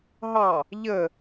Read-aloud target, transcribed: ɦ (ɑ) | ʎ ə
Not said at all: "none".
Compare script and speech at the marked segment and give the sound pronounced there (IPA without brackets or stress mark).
ɑ